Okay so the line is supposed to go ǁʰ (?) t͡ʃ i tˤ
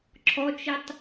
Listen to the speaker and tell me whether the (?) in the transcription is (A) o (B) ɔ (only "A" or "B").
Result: B